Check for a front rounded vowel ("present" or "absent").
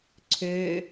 present